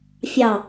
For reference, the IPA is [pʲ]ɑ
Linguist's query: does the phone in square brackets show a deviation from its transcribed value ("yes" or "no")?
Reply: yes